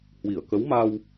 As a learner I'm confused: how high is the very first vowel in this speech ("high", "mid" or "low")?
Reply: high